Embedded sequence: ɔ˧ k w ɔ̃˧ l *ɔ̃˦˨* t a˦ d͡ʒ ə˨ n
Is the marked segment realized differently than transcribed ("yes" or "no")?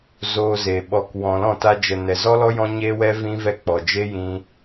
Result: no